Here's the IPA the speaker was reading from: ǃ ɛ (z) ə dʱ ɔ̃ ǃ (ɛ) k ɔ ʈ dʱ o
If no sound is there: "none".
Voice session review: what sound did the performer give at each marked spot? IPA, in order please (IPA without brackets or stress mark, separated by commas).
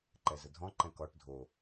z, ɛ̃